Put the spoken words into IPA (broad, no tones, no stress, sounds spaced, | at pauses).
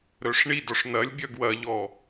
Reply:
ɾ œ ʂ ɳ i d ɔ ʂ n̪ ɐ lʲ bʲ œ ɡ w ɐ ʎ ɔ